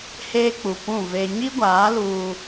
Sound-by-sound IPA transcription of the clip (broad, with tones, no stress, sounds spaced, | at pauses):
h eː˦ k͡p u˨ p ũ˦˨ v e˦ ɲ i˦ ɡʷ aː˨˦ l uː˦